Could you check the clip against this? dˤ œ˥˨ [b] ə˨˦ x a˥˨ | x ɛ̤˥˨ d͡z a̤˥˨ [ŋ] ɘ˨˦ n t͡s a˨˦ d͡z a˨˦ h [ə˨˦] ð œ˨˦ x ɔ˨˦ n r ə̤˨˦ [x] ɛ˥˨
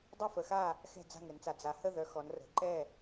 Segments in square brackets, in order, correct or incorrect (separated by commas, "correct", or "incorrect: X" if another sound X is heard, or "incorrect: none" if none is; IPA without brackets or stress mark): incorrect: f, correct, incorrect: ə˥˨, incorrect: ǃ